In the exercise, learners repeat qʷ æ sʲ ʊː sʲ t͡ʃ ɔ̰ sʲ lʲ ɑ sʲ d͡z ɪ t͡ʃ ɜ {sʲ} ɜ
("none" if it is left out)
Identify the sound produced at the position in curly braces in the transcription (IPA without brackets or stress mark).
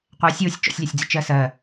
s